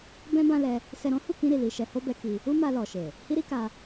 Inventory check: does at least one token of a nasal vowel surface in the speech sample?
yes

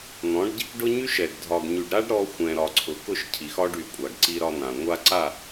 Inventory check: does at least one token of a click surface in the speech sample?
yes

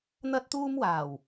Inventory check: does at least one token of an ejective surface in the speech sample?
no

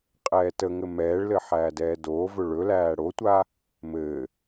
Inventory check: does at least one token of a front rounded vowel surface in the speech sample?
no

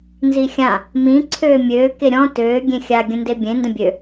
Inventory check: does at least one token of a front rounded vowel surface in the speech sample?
yes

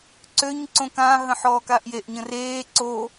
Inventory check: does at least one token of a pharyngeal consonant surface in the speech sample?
yes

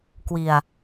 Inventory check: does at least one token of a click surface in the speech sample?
no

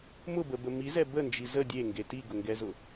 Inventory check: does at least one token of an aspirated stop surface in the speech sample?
no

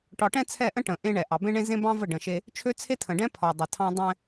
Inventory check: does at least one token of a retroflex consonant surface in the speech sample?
yes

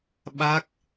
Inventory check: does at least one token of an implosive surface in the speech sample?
yes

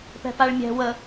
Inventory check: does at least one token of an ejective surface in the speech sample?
no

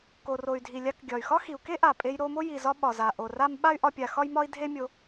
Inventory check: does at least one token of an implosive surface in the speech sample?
yes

